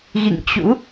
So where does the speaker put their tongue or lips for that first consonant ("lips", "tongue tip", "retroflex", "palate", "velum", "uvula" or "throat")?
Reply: velum